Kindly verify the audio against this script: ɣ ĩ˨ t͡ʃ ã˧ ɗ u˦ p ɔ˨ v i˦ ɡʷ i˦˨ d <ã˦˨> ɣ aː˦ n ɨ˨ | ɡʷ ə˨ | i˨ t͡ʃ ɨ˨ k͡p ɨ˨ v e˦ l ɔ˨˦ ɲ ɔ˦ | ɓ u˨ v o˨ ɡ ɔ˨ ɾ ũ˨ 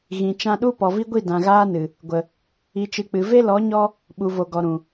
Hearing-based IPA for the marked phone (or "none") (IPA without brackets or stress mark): ã˨